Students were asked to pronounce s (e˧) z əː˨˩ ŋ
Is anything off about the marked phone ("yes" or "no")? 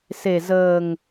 yes